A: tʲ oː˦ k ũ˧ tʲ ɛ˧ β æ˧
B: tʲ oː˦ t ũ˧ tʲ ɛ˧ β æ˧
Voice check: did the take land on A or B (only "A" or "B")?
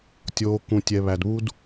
A